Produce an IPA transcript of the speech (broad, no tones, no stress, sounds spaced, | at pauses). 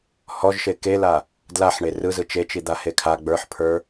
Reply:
h ɔ ʒ ʃ e k e l a | d l a ħ ɳ e r ɯ z ɯ t͡ʃ e t͡ʃ i d̪ a h e kʰ a ɡ͡b ə˞ ħ pʰ ə˞